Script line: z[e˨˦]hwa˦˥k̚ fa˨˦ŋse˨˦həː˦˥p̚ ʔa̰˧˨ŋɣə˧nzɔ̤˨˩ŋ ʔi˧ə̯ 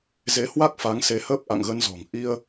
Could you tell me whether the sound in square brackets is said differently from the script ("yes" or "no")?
no